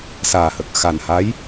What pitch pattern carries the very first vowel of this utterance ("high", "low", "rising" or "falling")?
low